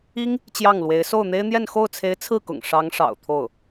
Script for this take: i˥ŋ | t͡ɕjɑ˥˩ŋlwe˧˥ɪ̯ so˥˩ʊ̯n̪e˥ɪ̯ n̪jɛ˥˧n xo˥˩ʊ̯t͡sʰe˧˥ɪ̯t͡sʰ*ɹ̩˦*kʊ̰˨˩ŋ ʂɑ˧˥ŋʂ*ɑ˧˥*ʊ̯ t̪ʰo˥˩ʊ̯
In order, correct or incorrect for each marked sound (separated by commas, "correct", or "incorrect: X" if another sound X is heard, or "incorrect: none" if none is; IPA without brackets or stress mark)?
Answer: incorrect: ɹ̩˥˩, incorrect: ɑ̰˨˩